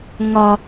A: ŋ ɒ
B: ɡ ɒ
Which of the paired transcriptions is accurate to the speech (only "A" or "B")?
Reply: A